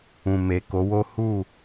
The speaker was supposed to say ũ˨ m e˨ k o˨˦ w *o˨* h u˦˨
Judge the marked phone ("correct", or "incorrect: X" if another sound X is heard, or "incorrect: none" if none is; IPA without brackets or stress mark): incorrect: o˦